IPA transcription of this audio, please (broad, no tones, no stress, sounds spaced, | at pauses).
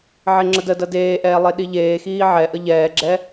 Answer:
ʕ e ŋ͡ǁ ə d ə d ɐ d eː ʔ ɛː lˠ e ɗ i ʎ eː x iː ʕ ɛ ʔ ə ʎ ɛː ɡ͡ǁ ɛ